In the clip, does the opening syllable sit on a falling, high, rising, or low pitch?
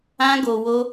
high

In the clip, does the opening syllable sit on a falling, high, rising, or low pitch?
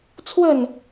falling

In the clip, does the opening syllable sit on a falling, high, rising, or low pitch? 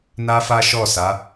high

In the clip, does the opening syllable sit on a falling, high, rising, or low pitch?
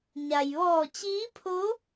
low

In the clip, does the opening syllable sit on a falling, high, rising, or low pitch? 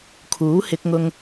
rising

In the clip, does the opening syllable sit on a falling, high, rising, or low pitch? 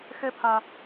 high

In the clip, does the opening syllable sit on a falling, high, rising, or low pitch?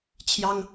high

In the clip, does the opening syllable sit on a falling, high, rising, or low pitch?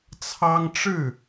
high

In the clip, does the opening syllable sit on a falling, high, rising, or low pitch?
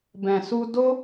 low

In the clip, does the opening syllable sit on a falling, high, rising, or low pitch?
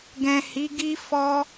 low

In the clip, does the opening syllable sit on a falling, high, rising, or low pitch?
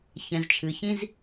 low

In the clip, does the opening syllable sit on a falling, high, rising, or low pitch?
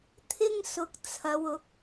high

